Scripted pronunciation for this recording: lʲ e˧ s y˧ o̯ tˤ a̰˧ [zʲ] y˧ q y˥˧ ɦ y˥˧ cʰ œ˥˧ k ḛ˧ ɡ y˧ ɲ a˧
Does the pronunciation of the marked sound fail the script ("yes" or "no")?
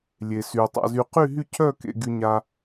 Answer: yes